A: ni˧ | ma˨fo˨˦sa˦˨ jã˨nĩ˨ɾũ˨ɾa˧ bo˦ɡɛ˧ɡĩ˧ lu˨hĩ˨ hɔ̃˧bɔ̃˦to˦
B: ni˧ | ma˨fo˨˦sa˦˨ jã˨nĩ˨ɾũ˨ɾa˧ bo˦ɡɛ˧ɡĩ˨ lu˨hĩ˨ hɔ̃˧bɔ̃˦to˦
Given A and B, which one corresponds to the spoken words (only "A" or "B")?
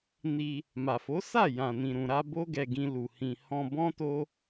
A